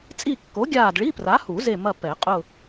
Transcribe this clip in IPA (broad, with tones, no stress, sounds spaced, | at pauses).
t͡sʼ i˦˨ kː o˨˥ ɡʲ aː˦˨ d ɭ i˧˥˧ p r a˨˥ h u˨˩˦ z e˦˨ m ɐ˦˨ p ɛ˨˩˦ qʼ ʊ˦˨